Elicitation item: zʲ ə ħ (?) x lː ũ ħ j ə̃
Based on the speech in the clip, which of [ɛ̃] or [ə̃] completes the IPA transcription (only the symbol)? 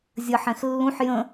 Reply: ɛ̃